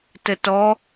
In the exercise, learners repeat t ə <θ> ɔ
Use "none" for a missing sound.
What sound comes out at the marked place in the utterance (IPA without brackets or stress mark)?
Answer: t